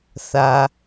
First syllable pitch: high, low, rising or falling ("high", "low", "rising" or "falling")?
low